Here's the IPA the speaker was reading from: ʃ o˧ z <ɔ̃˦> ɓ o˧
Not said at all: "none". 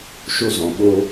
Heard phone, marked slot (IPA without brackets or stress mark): ɔ̃˨